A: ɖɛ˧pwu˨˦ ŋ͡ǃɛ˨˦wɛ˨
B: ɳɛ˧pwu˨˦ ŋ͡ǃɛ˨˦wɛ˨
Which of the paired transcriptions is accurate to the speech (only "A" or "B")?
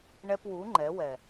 B